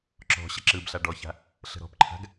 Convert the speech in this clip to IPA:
ǁ ɔ̤ ɕ ə ǁ ɯ b ɬ a ɖ ɔ ç a̤ | ɬ ə̤ ɾ ɔ̤ p ǃʰ a̤ ɡ

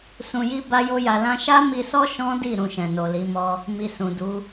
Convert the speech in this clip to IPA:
s ũ˧ j i˦ b a˦ j o˦ j a˧ l ã˧ ʃ a˦ m i˧ s ɔ˦ ʃ ɔ̃˦ d i˦˨ ɾ ũ˧ ʃ ɛ̃˨ n o˨ l i˨˦ m ɔ˦ | m i˨ s ũ˨ d u˨˦

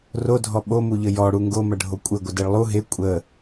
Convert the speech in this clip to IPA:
r o dʱ ɔ ɓ o m u ʎ ə j ɔ ɽ u ŋ ɡ o m ɐ ɖʱ o kʷʼ ɘ ɡʷ ə d e ɭ lˠ u ɦ e kʷʼ ə

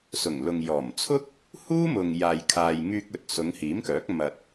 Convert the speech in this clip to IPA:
s ʊ˨˩ ŋ l ʊ˨ ŋ j ɔː˨˩ m t͡sʰ ʊ˥ k̚ | h uː˥ m ʊ˨ ŋ j aː˨ j kʰ aː˨ j ŋ yː˧ k̚ ɵ˨ t̚ s ʊ˨˧ ŋ h iː˨˥ m k œː˨˥ k̚ m ɐ˧ t̚

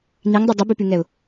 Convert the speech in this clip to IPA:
n i ŋ dˤ ɯ dˤ ɯ b y p y ŋ ɛ ʊ̯

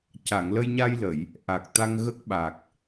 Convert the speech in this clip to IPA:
c a˨˩˨ ŋ l ə˧ j ɲ a˧ j l ə˨˩˨ j | ʔ a˨˩ k̚ t̪ a˧ ŋ ɣ ə˦˥ k̚ ɓ a˨˩ k̚

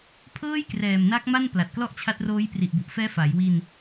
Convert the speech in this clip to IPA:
pʰ ɤː˥˩ j k r ɛː˨˩ m n a˦˥ k̚ m a˥˩ n p l a˨˩ t̚ k l ɔ˥˩ ʔ t͡ɕʰ a˦˥ t̚ r oː˦˥ j p r i˨˩ ʔ b u˨˩ ʔ f ɛː˦˥ f a˩˦ j w i˧ n

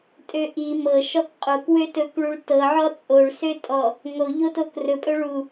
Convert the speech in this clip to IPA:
tʼ ø ʔ i m ɤ ʃ ɔ k qʼ o k w ø t ɵ k ɭ u ɭ t ɤ ʕ ɔ t͡sʼ o ɭ s ø tʼ ɔ | ŋ o ʎ o t o k r ɵ pʼ ɵ ɭ u

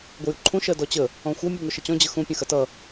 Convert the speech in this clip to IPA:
ɡʷ ə j u ǃʰ ũ ʃ ɜ d ɔ t͡ɕ ə | ɔ̃ xʷ ɐ mʲ u ŋ o ʃ ə t͡ɕ ɔ̃ d͡ʑ ə x ũ pʲ ɐ̃ x ɐ t ʌ

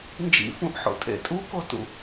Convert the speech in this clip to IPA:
n d͡ʒ ḭ f ũ ʔ ħ o̰ tʼ ḛ tʼ u k o t ṵ

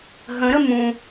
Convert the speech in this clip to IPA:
ɦ ə̃ ɾ ə m ũ

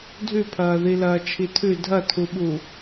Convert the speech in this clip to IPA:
dʱ ʉ pʰ ɐː ð i l ɐː t͡ʃʰ i tʰ ʉ dʱ ɐ tʰ u ɓ u

